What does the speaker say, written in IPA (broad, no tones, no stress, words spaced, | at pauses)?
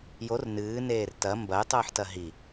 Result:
jor nɨːneːr tɐ mbɐjtˤɨːħtɐ ɦi